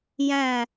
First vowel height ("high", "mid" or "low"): low